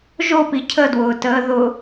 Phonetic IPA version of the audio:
ʒ o p i cʰ ə d w ʊː t əː ð ʊ

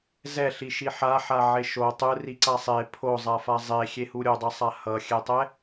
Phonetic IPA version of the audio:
z ɛ ɬ i ʃ i ħ a ħ a ʕ e ʃ o tˤ ɯ r i ǀ a sˤ e pʰ o zˤ a f a zˤ e xʲ e h u ɾʲ o dˤ e sˤ a h ʌ xʲ ɛ tˤ ɛ

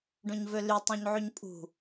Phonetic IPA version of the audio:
ɖ õ ɲ v ø l y tˤ õ ɲ ʕ y ɲ pʼ ṳ

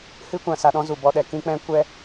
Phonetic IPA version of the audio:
h ɨ˦ kʷ ã˨ s a˧ ɗ ɔ̃˦ z u˨ b ɔ˧ ɗ ɛ˨ k ĩ˦ k͡p ɛ̃˦ kʷ ɛ˦

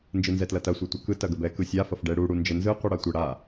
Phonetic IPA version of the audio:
n d͡ʒ ɯ n z ɛ t l ɐ t ɐ sʷ ɛ tʷ ɐ k ɯ t ɐ ɡ ə b ɛ k ɯ sʲ a f ɐ f ɖ ɛ ɽ u ɽ u n d͡ʒ ə n z ɯ qʷ i ɽ a tʷ ə ɽ a

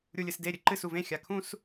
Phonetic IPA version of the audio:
ɾʲ u lʲ ɨ s d e ɾʲ ɨ ǃ ɨ s u v ẽ xʲ a kʰ ũ s

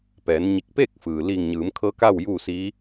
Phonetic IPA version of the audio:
p ɛː˩˧ n ɲ i˧˩ k̚ p eː˥˨ k̚ f ɯː˩ l iː˧˩ ŋ ɲ ɯː˩˧ m kʰ ɤː˧˥ k a˥˨ w j uː˥˨ s i˧˥

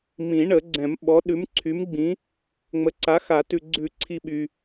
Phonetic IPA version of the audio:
m ĩ˨˩˦ ɳ ə˨˩˦ ɡ͡ǀ ɛ̃˨˩˦ m ɓ ɔ˨˥ ɗ ʉ˨˥ m ǀʰ y˨˥ m ɡ͡b ĩ˨˥ | ŋ͡m ə˨˥ ǀ a˨˥ x a˨˩˦ t ʉ˨ ɡ͡ǀ ʉ˨˩˦ ǀʰ i˨ ɓ y˨

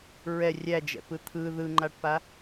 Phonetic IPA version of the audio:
ɹ ɛ rʲ æ d͡ʒ ɛ̰ p ɯ t̪ʰ ɯ ð ɯ ŋ͡ǃ a ʈ p a

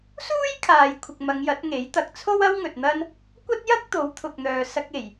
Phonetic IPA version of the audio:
s uː˥ j kʰ aː˨ j kʷʰ ɪ˨ k̚ m ɐ˨˧ ŋ j ɐ˨˥ t̚ ŋ e˨˥ j t̪ ɐ˨ k̚ t͡sʰ o˥ w ɐ˥ w ŋ ɵ˨ t̚ n̪ ɐ˥ n | kʷ ɐ˥ t̚ j ɐ˥ k̚ t̪ o˨˥ w t̪ʰ ʊ˨ k̚ n̪ œː˨ s ɐ˧ k̚ e˨˩ j

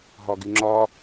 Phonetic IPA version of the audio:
ɦ ɒ ɡ y ŋ͡ǁ ɒ

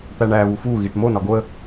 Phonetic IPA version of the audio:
t̪ æ ɳ æ β u f u ɣ i ʈ m o n ɒ ɡ o ə̯

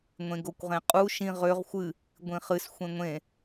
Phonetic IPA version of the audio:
ŋʷ ẽ ɡ o kʷ ʁ ẽ qʼ u ʃ ĩ ʁ ø ʁ xʷ ɨ | ɡʷ ĩ χ ɨ s xʷ ẽ ŋʷ ẽ

